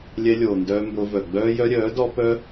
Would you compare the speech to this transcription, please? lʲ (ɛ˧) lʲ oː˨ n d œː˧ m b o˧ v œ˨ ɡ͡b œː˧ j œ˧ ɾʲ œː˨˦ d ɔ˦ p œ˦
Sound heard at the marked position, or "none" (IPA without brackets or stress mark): ɛ˧